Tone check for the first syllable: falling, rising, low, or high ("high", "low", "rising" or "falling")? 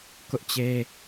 high